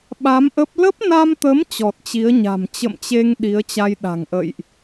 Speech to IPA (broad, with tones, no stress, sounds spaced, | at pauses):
ɓ a˨˦ m ʔ ə˦˥ p̚ l ə˦˥ p̚ n a˧ m t̪ ə˨˦ m t͡ɕ ɔ˨˩ t̚ t͡ɕ i˨˦ ə̯ ɲ a̤˨˩ m t͡ɕ ə̰˧˨ m t͡ɕ e˧ ŋ ɗ i˨˦ ə̯ t͡ɕ a˧ j ɗ a̤˨˩ ŋ ʔ ə̰˧˨ j ʔ